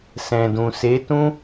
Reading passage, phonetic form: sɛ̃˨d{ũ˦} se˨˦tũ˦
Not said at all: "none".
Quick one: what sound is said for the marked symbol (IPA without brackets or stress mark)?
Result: ũ˨